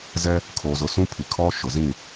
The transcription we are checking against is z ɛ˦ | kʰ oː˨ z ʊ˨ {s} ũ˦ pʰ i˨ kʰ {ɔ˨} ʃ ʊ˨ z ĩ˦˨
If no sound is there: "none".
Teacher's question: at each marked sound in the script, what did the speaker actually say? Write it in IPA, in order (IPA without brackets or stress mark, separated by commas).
s, ɔ˦